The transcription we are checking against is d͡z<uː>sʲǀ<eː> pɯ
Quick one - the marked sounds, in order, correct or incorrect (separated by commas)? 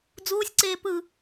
correct, correct